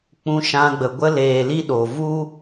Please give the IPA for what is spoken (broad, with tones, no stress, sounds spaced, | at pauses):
k͡p ũ˧ ʃ ã˧ ɡ͡b ə˨ ɡʷ ə˧ l eː˨ l i˧ ɗ o˨ v u˦